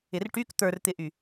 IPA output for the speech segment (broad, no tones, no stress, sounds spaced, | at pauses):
ɪ r ʈ y k t̪ ə˞ r t̪ ɪ ʔ y